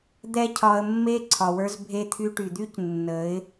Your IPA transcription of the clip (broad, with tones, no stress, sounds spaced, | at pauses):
d̪ ɛ˦ cʰ ɒ˧ ə̯ mː e˦ ǀʰ ɒ˨ w ə˞˧ z bʱ e˧ t̪ʰ y˧ ʈ y˨ d̪ y˦ c nː ə˨˦ ɪ̯